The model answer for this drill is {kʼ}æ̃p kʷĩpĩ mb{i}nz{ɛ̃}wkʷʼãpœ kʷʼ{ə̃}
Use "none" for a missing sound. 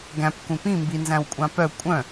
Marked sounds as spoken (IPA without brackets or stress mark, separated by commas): ɡ, i, æ̃, œ̃